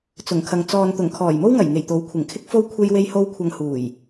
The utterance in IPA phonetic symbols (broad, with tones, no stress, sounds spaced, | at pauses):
t͡s ʊ˨˩ ŋ kʰ ɐ˨ ŋ t͡s ɔː˨ n t̪ ʊ˨˩ ŋ kʰ ɔː˨˩ j m o˥ w ŋ ɐ˨˩ j ŋ e˨˩ j t̪ o˨˥ w kʷʰ ɪ˨˩ ŋ kʰ ɪ˥ k̚ f o˥ w kʷʰ e˥ j w e˥ j h o˥ w kʷʰ ɐ˧ ŋ h uː˨˩ j